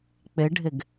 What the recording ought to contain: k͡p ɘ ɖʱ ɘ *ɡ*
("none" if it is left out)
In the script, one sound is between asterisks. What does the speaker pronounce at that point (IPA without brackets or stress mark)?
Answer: ɡ